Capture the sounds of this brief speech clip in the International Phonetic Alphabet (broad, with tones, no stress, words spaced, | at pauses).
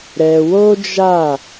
ɾɛ˧ wo˦d͡ʒa˦˨